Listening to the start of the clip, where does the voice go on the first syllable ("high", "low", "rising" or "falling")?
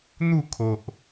falling